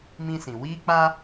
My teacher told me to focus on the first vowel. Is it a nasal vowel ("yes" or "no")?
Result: yes